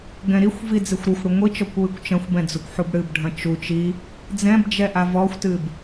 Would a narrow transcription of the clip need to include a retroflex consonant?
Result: yes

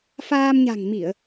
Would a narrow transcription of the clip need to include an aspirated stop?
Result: no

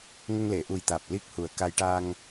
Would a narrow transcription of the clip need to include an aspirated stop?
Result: no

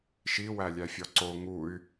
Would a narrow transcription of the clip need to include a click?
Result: yes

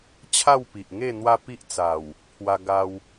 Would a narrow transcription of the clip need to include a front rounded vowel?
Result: no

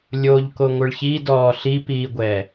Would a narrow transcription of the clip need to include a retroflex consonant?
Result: yes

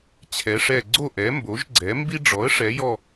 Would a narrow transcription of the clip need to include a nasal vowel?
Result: no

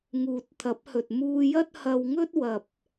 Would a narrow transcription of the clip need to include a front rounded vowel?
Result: no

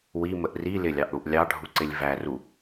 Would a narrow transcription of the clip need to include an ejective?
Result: no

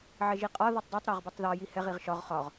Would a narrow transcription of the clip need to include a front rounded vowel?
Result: no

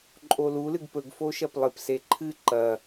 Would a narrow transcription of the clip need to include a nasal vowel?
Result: no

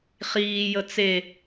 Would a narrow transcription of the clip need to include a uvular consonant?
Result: yes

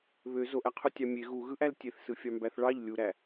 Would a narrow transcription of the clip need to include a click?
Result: no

